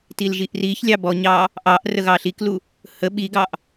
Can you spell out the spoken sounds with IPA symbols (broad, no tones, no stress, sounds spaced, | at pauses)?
t i l ʒ i ʔ r i ç lʲ ɑ b ɔ ɲ ɑ | ʔ ɑ ʔ r ə ɣ ɑ ɬ i k l u | h ə ɓ i ɡ ɑ ʔ